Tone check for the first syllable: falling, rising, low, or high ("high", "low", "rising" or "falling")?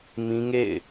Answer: high